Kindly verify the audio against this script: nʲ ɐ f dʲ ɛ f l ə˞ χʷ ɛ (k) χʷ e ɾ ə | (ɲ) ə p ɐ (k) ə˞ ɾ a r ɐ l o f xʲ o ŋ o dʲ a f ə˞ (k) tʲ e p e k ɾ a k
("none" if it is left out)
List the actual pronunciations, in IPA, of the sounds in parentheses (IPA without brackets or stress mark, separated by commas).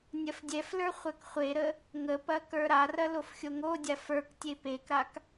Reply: k, ŋ, k, k